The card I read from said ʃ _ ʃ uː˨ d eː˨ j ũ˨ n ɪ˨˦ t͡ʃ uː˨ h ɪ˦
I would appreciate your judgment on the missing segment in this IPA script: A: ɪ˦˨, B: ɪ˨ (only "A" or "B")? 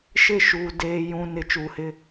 A